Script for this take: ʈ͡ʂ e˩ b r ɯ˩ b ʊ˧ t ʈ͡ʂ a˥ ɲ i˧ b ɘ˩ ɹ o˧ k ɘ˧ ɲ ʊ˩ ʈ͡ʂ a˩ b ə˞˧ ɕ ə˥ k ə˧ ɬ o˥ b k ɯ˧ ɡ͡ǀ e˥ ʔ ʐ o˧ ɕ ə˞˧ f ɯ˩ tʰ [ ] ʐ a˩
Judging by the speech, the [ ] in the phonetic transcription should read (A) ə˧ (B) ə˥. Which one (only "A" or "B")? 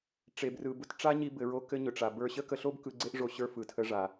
A